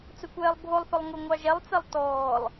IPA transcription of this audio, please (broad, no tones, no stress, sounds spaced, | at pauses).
t͡s ɵ kʷ ɛː lˠ bʱ o lˠ θ ʊ lˠ ŋ ʊ ŋʷ ɑ ʒ ɛ lˠ t͡s ɛ lˠ t ɔː lˠ